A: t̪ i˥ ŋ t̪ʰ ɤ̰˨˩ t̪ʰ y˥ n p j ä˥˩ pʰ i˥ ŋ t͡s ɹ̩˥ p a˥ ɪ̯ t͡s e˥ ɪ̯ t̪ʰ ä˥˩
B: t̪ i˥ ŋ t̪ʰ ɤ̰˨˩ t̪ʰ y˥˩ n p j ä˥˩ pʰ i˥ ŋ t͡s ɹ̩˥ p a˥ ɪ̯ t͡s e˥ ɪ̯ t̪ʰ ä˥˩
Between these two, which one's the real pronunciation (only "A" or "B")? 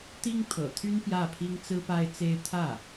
A